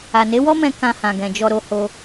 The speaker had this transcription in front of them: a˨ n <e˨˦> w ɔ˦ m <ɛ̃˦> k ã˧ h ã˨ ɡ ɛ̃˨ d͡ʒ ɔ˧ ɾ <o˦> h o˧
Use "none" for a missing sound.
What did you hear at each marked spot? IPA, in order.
e˨˦, ɛ̃˧, o˦

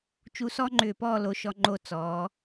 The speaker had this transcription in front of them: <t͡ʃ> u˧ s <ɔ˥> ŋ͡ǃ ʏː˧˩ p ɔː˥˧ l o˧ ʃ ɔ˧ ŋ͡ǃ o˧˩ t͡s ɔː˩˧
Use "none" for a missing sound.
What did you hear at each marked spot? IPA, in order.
t͡ʃ, ɔ˥

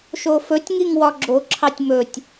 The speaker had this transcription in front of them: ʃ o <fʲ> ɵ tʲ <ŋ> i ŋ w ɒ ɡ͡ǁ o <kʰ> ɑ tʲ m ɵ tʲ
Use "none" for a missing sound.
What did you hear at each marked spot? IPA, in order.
f, ŋ, ǁʰ

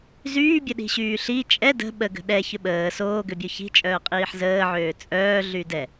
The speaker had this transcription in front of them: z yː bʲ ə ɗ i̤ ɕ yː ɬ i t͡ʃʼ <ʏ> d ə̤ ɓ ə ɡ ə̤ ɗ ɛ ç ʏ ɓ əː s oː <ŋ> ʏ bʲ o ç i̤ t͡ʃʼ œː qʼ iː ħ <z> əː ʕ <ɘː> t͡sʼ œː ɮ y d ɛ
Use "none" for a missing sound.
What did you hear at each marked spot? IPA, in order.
ɛ, ɡ, z, øː

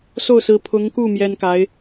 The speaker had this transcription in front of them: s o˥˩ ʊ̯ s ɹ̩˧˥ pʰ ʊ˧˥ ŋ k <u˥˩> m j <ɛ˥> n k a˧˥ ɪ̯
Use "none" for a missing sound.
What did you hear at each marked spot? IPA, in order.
u˥˩, ɛ˥

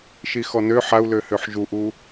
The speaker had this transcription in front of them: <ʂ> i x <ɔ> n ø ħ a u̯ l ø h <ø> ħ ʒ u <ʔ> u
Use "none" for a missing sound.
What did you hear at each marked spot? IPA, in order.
ʃ, ɔ, ø, ʔ

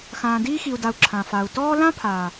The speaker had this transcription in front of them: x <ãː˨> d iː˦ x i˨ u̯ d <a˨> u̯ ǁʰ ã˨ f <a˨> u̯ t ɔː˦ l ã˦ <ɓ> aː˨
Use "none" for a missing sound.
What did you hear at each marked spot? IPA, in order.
ãː˨, a˨, a˨, pʰ

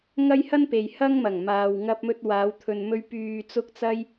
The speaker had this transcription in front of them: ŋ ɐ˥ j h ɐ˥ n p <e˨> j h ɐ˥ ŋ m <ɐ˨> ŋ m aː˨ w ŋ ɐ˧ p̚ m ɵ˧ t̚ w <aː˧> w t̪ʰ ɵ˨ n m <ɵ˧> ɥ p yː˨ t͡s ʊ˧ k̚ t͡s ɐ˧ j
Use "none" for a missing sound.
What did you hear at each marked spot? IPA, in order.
e˨, ɐ˨˩, aː˨˧, ɵ˧

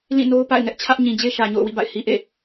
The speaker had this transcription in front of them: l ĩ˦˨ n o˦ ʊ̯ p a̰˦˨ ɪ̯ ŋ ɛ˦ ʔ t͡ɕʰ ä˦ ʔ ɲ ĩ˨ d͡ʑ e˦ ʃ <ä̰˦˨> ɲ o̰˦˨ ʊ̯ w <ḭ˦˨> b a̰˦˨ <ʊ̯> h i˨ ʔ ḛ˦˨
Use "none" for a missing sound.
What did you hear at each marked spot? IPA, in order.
ä˨, ḭ˦˨, ɪ̯

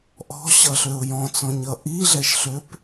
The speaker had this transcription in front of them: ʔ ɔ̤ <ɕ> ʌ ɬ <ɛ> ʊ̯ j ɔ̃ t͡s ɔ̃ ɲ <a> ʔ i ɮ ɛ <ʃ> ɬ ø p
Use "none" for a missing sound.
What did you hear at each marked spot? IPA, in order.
ɕ, ø, ʌ, ʃ

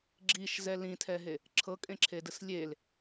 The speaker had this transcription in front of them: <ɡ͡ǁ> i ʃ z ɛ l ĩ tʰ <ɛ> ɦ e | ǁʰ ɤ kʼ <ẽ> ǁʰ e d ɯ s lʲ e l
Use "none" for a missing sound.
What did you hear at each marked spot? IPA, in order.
ɡ͡ǁ, ɛ, ẽ

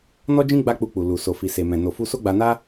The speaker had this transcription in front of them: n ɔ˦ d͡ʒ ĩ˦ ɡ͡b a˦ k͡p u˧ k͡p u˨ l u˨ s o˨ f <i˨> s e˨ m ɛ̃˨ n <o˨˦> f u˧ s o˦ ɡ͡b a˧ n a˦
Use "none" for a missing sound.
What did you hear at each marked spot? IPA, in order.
i˨, o˨

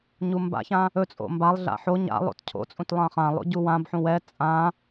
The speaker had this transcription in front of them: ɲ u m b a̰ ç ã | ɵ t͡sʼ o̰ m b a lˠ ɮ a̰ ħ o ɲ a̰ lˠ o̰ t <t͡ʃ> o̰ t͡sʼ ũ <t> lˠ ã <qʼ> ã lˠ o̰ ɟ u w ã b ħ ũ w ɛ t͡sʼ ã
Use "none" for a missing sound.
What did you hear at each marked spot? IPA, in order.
cʰ, t, χ

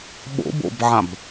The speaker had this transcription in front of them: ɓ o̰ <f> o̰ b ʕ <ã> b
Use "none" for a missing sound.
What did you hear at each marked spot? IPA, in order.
b, ã

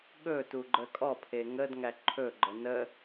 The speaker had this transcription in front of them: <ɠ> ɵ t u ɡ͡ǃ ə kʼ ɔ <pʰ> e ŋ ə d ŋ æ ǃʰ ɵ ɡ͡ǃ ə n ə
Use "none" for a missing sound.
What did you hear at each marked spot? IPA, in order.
ɠ, pʰ

